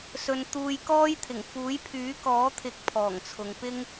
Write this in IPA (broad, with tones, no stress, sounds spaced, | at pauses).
s ɵ˨ n t̪ uː˨ j k ɔː˥ j t̪ʰ ɪ˨˩ ŋ f uː˨˥ j pʰ yː˨˥ k ɔː˨˥ t̪ʰ ɪ˨˥ k̚ pʰ ɔː˨˩ ŋ t͡sʰ ʊ˨ ŋ p ɪ˥ ŋ